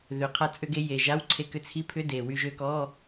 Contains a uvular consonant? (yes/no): yes